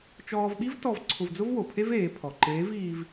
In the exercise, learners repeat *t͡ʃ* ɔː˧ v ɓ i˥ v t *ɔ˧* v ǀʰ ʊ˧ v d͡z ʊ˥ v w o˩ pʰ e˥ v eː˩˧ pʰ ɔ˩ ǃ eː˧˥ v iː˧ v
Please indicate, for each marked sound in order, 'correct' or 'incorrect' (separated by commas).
correct, correct